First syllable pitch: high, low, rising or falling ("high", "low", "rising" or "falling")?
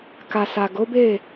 low